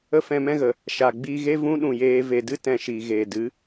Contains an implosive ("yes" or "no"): yes